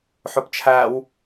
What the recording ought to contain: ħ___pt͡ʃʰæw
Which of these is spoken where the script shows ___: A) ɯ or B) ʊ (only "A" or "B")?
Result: B